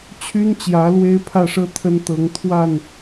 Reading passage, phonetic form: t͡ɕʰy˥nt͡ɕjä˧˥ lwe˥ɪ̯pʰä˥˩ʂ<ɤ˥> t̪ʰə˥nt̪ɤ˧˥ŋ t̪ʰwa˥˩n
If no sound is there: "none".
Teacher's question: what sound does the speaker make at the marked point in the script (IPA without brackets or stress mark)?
ɤ˥